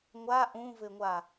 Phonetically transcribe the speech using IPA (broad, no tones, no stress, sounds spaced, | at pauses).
ŋʷ a ʔ ũ v ɘ ŋʷ a